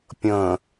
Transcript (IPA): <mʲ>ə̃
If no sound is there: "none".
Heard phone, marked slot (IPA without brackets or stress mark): pʲ